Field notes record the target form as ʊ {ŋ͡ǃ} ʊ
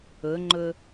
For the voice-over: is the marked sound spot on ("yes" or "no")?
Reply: yes